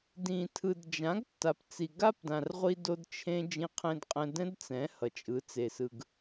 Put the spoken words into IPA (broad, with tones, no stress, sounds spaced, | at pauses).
d ĩ˨ tʰ ɯ˨ d d͡ʒ ã˨˦ ɡ tː a˨ p t͡s i˨ ɡ a˦ p d ã˨ r ʁʷ i˧ d o˧ d t͡ʃʰ ẽ˦ d͡ʒ ĩ˧ qʰ ẽ˧ d qʼ ɛ̃˧ d ɛ̃˦ d t͡s ɛ̃˨˦ h ʌ˨ t͡ʃʼ ɯ˨˦ t͡s e˨ s ɯ˨ ɡ